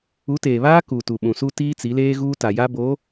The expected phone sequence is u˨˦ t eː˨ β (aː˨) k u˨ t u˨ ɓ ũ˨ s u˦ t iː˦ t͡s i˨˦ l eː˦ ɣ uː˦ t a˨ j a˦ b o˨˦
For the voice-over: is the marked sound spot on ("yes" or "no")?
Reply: no